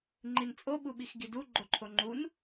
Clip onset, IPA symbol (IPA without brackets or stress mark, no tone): ŋ͡ǃ